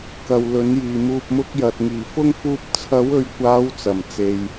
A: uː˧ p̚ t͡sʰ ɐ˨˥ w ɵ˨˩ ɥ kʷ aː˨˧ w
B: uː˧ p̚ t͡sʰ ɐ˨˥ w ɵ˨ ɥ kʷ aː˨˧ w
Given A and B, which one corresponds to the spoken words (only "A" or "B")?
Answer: B